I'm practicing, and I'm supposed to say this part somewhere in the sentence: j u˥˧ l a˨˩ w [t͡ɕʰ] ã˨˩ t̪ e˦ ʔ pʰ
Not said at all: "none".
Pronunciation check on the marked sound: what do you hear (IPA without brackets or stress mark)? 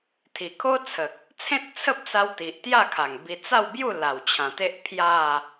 t͡ɕʰ